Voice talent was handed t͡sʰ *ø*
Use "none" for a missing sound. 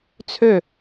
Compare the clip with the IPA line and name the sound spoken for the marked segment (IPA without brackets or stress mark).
ø